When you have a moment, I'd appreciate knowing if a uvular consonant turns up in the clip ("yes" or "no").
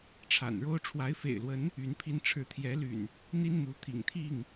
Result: no